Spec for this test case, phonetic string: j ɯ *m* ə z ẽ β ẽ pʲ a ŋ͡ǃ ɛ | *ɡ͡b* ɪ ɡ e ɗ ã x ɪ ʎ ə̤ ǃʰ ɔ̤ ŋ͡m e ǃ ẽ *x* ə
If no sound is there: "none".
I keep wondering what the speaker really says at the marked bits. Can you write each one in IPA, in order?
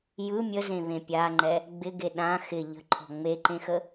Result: mʲ, ɡ͡b, x

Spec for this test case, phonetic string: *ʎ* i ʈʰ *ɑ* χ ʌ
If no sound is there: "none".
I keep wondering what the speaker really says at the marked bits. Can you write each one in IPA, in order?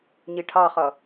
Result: ɲ, ɑ

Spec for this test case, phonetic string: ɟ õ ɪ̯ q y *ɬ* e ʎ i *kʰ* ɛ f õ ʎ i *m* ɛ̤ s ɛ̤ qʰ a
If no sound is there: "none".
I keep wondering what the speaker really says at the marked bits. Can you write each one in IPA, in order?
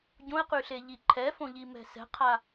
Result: ɬ, ǃʰ, m

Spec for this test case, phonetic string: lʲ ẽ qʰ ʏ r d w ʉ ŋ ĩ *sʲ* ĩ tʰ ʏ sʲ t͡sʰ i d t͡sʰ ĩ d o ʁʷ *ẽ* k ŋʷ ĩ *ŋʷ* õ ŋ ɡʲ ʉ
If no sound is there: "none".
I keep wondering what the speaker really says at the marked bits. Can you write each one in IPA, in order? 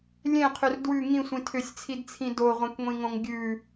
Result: sʷ, ẽ, ŋ

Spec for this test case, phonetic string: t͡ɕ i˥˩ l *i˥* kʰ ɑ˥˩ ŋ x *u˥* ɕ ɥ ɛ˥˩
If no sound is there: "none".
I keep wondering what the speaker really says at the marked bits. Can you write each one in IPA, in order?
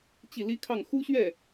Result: i˥, u˥

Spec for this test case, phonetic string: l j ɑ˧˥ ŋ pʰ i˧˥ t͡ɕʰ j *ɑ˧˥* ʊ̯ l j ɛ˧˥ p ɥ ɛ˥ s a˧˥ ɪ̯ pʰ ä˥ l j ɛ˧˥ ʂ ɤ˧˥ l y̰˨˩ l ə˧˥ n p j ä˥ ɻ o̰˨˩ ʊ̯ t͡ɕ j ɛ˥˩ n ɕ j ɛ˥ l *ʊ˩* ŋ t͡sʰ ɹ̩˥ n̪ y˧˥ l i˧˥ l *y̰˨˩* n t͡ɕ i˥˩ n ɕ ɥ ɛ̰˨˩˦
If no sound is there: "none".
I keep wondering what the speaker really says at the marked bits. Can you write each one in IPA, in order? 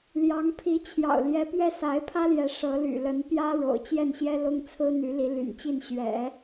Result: ɑ̰˨˩, ʊ˥, y̰˨˩

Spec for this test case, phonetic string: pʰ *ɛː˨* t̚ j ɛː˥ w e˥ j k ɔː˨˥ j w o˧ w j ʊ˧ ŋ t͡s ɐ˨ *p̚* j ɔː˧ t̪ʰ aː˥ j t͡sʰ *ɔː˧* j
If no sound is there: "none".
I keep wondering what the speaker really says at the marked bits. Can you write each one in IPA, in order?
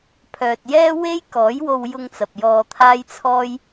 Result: œː˨, p̚, ɔː˥

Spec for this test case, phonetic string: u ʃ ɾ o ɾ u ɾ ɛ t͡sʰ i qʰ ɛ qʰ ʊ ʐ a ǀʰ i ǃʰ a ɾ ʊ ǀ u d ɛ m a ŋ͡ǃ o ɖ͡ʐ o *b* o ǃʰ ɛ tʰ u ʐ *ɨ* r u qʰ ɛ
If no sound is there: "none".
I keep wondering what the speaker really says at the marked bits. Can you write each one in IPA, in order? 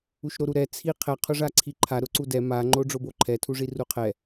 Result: b, i

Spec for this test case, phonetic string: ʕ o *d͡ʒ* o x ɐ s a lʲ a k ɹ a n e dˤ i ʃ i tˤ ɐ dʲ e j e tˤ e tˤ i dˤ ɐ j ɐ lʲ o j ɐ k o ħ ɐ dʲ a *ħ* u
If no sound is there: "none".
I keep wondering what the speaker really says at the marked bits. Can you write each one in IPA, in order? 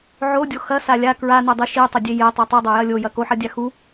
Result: dʲ, x

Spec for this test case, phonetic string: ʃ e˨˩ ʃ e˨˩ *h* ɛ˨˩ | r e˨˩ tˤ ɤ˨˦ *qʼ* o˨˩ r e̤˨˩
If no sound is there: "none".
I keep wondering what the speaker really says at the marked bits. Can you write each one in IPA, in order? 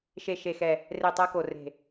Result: x, k

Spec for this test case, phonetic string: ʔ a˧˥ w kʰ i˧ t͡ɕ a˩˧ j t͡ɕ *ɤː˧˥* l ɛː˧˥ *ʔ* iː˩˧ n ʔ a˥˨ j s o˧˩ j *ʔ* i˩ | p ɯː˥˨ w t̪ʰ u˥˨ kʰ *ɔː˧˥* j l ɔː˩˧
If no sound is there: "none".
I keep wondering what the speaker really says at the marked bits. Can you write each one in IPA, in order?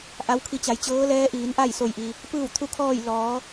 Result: ɤː˧˥, ʔ, ʔ, ɔː˥˨

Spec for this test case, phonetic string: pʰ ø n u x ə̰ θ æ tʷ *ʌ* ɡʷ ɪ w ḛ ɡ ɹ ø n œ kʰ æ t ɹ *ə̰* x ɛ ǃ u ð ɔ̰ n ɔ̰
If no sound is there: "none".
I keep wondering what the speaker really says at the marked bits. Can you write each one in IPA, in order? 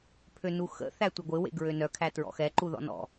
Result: ə, ɔ̰

